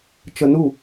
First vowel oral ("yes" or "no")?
yes